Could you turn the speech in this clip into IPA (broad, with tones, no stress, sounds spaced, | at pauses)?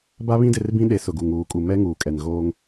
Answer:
b a˦ β ĩ˦ d ɪ˦˨ r b ĩ˦ ɗ e˨˦ s ʊ˨ ɡ u˨ ŋ uː˨ kʼ u˨ m ɛ˦ ŋ uː˨ kʼ ɛ˨ n ɣ oː˦ ŋ